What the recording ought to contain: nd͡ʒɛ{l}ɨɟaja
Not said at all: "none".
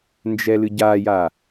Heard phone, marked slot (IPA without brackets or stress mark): l